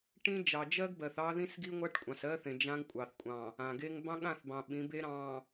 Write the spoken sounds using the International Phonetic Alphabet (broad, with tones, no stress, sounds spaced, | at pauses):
ʈ ĩ˦ d͡ʒ ɑ˨ d͡ʒ ɜ˦ ɡ b ɜ˨ θ ɑ˦ ð ĩ˦ s ɡ i˦ ŋʷ a˦ ʈ kʷʼ ɑ̃˨ s ɜ˦ θ ẽ˨ d͡ʒ ã˦ ŋ kʷʼ ɑ˨ θ kʷʼ ɑ̃˨ | ã˨ ɡ e˦ ŋ b ɑ̃˦ ɠ ã˦˨ θ b ɑ̃˨ ɓ ĩ˨˦ b e˦ ɾ ɑ̃˨